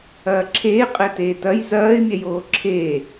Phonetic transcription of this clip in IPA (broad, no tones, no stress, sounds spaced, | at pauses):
ɐː ǁʰ eː qʼ ɛ t eː t ɐ j z ɐː ɪ̯ mʲ ɛ j oː ǁʰ eː